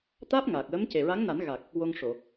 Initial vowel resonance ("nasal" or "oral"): oral